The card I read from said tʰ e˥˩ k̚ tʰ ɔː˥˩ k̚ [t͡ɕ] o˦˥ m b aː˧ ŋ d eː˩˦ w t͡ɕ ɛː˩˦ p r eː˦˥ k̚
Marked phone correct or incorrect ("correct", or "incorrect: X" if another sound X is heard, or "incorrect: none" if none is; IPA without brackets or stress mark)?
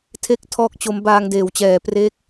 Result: correct